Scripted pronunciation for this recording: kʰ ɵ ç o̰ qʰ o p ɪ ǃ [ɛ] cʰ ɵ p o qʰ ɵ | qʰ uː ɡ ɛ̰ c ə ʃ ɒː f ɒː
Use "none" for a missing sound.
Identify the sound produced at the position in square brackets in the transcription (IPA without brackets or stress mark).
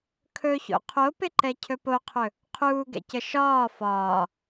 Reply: ɛ